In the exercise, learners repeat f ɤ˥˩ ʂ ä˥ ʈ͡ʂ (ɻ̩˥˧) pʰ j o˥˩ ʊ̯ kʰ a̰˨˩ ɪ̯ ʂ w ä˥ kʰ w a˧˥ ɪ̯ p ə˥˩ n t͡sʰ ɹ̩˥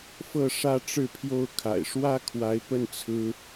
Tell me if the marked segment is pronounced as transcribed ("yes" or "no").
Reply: yes